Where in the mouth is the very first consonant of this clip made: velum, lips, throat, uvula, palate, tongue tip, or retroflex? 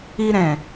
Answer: tongue tip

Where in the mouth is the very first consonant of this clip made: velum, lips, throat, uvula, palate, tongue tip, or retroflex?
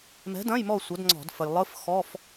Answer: lips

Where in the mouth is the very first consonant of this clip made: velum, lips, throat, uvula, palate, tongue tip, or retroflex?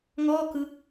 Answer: velum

